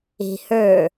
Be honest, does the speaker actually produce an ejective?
no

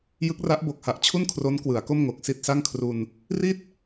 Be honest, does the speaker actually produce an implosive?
no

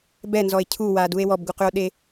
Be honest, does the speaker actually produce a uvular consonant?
yes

